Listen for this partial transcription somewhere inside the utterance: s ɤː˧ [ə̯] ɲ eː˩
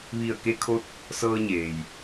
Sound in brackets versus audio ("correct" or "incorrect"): incorrect